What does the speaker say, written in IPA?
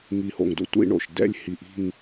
ŋ i˧˩ h o̰˧˩ ŋ d o̰˥ tʷ ḭ˥˧ ɳ o̰˧˩ ʃ d ɛ̰˥˧ lʲ h i˧˩ ʔ i̤˥˧ ŋ

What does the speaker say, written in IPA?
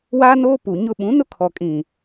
w aː˦ n oː˦ p u˨ ɲ ʊ˦ ɓ ũ˨˦ n ʊ˦ kʰ ɔ˨ kʼ ĩ˨

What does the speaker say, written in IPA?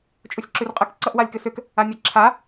t͡ʃʼ u sʲ ǁ ʉ r qʼ ə k ǀ ʌ ʔ w a lʲ k ʏ s ʏ k | a nʲ ʌ ǁʰ a

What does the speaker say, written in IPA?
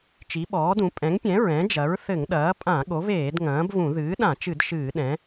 t͡ʃ i˩˥ ɓ ɔː˩˥ d ũ˩˥ pʼ ɛ̃˩˥ ŋ pʲ ɛ̃˩˥ ɹ ɛ̃˩˥ d͡ʒ ɐ˩˥ ɹ θ ɘ˧˩˧ ŋ ɗ ɐː˩˥ pʼ ã˧˩˧ ɠ o˩˥ v eː˧˩˧ d ŋ ɐ̃ː˩˥ b v ũ˧˩˧ ð ɨː˩˥ ɗ ã˧˩˧ t͡ʃ ɨ˧˩˧ d ʃ ɨː˧˩˧ ɗ ɛ̃˩˥

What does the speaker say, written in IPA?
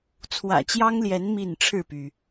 t͡sʰ w ä̰˨˩ t͡ɕ j ɑ˦ ŋ l j ɛ˨˦ n m i˥˨ n ʈ͡ʂʰ ɻ̩˥˨ p y˩

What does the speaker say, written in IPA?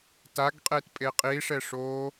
t a ɡ qʼ e t pʼ e qʼ i ʂ ɛ ʂ o

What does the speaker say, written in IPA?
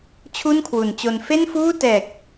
t͡ɕʰ u˥˩ n kʰ w u˩˦ n t͡ɕ o˧ n f e˥˩ n f uː˥˩ t ɛː˨˩ k̚

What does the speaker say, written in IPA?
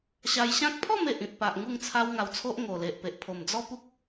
ɕ a˧ j ɕ ã˦ k̚ pʰ ɔ˥˧ m e˨ ʔ ĩ˨ t̚ p a˨ ʔ ŋ u˥˧ ŋ t͡sʰ a˦ w ŋ a˧ w t͡sʰ o˦ ʔ ŋ o˨˩ l e˨ ʔ p e˨ ʔ pʰ o˨˩ m d͡z ɔ˦ p u˦ k̚

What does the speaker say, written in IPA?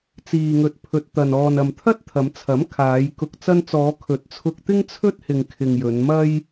t͡s iː˨ ŋ ɵ˨ t̚ pʰ ɵ˨ t̚ t̪ ɐ˨ n ɔː˨ n ɐ˨ m t̪ʰ ɐ˥ t̚ t̪ʰ ɐ˨˧ m t͡sʰ ɐ˨˥ m kʰ aː˨˧ j k ʊ˨ k̚ t͡s ɐ˧ n t͡s ɔː˨˧ kʰ ɵ˨˥ t̚ t͡sʰ ʊ˧ k̚ t̪ ɪ˥ ŋ t͡sʰ ɵ˥ t̚ h ɪ˨ ŋ kʰ ɪ˨ ŋ j ɵ˨˧ n m ɐ˥ j

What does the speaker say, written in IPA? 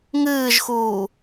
ŋ ɨː ʒ x uː

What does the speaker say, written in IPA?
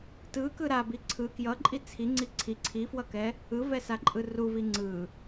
t ɯ k ɯ ɾ a b i ǀʰ ɯ k j ʌ ǃʼ i t͡sʰ i ŋ͡ǀ i ǀʰ i ǀʰ i f w ʌ k ɛ | ɯ v ɛ s a ǃʼ ɯ r u v i ŋ͡ǀ ɯ

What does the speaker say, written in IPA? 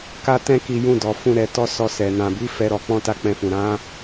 k a˦ t ɛ̃˦ k i˧ j ũ˧ d ɔ˨ f ũ˧ ɾ ɛ˧ t ɔ˦ s ɔ˧ s ɛ˨ n ã˨ b i˨˦ f ɛ˦ ɾ ɔ˧ k͡p ɔ̃˦ t a˦ k͡p ɛ̃˧ f ũ˨ ɾ ã˨˦

